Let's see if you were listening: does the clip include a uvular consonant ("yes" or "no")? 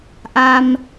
no